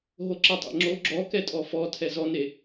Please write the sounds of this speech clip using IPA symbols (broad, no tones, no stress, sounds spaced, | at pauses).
ɦ o ǁ ɛ tˤ ḛ ŋ͡ǁ o ɡ͡ǁ ɔ k ɛ tʼ ɔ f ɔ tʰ ɛ z ɔ n e